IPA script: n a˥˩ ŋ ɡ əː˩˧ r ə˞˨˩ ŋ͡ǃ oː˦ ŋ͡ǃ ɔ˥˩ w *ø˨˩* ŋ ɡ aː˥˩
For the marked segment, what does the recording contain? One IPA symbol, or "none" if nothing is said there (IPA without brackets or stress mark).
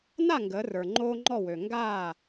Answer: ø˨˩